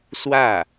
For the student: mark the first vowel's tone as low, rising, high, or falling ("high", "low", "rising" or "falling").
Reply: falling